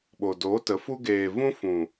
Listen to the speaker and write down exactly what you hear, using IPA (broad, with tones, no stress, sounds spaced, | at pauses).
ɓ o˨ d oː˨˦ t ə˨˦ f u˦ ɡ eː˧ v ũ˦ f ũ˨